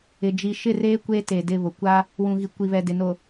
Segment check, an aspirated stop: absent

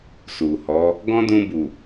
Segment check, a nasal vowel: present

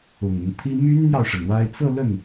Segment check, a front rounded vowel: present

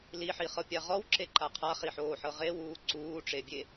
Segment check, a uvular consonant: present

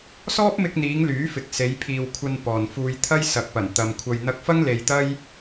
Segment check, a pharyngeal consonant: absent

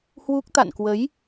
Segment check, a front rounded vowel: absent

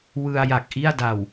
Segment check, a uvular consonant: absent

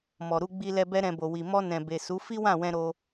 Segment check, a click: absent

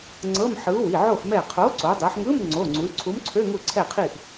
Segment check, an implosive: absent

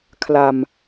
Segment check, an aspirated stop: present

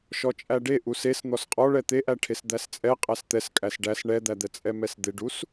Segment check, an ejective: present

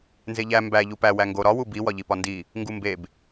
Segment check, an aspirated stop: absent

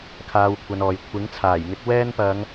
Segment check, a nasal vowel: absent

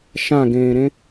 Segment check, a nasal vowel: present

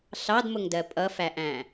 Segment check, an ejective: present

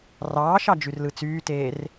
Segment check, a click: absent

